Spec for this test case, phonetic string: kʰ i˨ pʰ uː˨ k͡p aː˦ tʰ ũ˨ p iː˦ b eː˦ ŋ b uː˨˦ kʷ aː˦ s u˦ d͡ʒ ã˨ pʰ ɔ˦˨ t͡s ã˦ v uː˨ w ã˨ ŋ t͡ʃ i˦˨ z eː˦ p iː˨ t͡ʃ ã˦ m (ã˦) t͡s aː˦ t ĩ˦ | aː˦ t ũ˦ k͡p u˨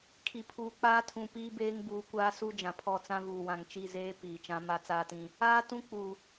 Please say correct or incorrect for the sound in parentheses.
incorrect